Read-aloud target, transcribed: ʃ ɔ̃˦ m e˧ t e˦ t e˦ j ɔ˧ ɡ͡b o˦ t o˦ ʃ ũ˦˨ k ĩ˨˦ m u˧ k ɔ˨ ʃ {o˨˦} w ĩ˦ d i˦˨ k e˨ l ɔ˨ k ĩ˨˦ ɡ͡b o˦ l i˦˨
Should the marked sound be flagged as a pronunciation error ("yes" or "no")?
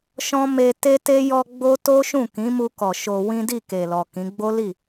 yes